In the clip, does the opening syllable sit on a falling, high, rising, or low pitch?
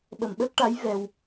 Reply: low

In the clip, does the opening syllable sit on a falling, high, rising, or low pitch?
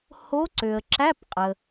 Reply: rising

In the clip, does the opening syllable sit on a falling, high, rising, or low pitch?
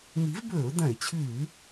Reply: rising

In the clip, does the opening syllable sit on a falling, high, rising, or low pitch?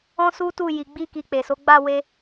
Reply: high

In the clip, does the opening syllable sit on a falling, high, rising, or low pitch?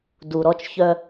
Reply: low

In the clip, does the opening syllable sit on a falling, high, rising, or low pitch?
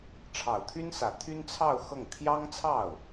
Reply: low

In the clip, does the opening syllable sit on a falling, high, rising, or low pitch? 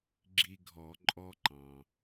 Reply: high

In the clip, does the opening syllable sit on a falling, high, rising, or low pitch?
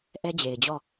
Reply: high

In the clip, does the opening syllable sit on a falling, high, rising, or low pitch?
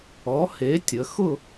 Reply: rising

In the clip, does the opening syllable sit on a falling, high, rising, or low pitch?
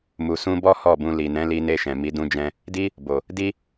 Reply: low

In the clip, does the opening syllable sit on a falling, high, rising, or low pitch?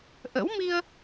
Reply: rising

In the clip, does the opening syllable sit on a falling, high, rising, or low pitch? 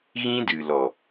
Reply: high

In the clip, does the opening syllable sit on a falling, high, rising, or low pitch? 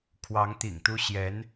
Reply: rising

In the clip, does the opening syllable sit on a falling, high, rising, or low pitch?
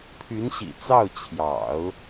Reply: rising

